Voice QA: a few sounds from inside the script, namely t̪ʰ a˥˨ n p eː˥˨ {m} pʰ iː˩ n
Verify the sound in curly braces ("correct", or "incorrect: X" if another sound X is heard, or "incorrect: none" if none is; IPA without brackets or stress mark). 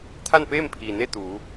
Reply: correct